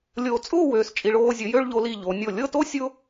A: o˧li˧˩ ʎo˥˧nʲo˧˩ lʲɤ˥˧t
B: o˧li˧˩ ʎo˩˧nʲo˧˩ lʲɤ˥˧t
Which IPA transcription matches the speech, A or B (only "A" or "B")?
B